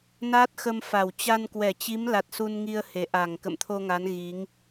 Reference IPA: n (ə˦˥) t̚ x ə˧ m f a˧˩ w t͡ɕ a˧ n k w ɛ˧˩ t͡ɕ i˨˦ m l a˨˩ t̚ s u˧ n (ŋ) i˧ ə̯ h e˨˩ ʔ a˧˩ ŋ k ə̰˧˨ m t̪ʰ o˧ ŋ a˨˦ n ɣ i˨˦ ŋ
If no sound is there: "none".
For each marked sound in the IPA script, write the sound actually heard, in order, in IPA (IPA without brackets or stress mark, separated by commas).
a˦˥, ŋ